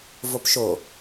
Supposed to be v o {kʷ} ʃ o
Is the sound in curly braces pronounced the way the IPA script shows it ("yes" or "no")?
no